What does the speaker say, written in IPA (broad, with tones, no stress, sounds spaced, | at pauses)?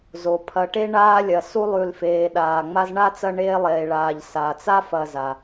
z o˩ pʰ ɐ˨ ʈ e˦ ɳ aː˦ lʲ ɐ˩ s u˥ lˠ ʉ˨ l f eː˨ ɗ aː˩ ŋ͡m a˦ z ɳ a˥ t͡s ɐ˦ ɳ eː˥ lˠ eː˨ ɭ aː˨ ʎ s a˩ t͡s a˥ f ɐ˨ z a˩